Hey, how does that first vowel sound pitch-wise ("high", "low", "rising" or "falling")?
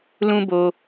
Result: high